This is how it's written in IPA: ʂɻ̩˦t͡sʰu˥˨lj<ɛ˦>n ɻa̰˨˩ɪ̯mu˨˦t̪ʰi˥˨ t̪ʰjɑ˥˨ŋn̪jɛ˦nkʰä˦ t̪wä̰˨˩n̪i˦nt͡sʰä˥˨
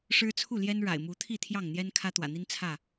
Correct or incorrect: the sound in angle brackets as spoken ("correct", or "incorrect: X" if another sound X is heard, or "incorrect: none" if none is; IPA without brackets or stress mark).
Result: correct